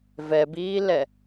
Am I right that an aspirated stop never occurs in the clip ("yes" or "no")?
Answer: yes